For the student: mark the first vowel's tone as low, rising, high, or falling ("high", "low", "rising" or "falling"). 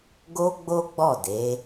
high